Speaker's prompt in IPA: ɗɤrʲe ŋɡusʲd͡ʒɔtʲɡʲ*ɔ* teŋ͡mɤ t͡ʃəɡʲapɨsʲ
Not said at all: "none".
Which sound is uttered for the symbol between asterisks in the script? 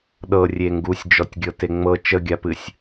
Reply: ɤ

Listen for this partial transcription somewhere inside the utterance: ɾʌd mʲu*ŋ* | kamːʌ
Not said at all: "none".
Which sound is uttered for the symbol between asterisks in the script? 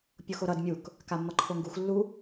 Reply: k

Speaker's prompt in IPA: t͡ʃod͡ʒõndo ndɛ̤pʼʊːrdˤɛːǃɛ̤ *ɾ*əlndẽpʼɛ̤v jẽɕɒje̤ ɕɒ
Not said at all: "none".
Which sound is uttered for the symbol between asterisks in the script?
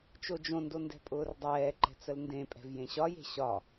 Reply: t͡s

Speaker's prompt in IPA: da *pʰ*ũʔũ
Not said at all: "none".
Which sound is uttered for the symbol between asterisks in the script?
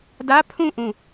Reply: pʰ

